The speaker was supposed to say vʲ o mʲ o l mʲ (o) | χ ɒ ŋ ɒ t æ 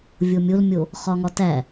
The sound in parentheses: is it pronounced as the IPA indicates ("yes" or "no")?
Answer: yes